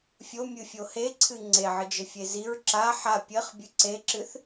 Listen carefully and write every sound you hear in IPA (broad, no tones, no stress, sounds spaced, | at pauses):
fʲ o mʲ ɨ fʲ o h e ǀʰ ɨ ŋ͡ǀ e ʕ ɨ d͡ʒ ɘ fʲ e z i ɹ ǁ a ħ a pʲ ɘ χ bʲ ɨ ǀ e ǁ ɨ θ